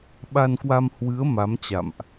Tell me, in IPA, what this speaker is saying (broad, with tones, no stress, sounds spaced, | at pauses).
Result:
ɓ a˧ n k w a˧ m h w ɨ˨˦ ə̯ m a˨˦ m t͡ɕ a̰˧˨ m ʔ